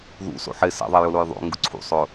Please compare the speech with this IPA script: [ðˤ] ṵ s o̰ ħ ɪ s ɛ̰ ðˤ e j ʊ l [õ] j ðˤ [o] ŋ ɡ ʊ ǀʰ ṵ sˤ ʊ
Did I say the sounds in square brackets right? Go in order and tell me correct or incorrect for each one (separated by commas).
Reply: incorrect, incorrect, incorrect